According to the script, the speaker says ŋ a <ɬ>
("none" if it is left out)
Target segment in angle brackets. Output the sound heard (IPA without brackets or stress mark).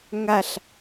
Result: ɬ